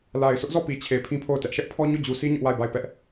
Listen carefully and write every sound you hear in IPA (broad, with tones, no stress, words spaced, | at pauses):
la˨ɪ̯ sʰʊ˦ʔzɔ˦˨ pi˨t͡ɕʰe˨ pʰĩ˦pʰo˦˨ʊ̯tɛ˦ʔ ʃɛ˦ʔpʰɔ˦ ɲo˦˨d͡ʑu˨si˦ ɲʊ˦ʔwa˦˨ɪ̯ba˦˨ɪ̯ pɛ˦ʔ